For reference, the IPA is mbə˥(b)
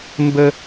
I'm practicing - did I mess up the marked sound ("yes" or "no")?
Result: yes